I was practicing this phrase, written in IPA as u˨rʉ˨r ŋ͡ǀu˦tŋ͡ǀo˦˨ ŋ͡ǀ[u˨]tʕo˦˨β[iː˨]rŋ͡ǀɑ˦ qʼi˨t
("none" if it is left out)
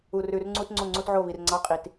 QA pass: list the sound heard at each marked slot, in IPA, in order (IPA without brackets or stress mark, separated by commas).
u˦, i˨